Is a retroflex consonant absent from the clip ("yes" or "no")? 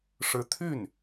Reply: no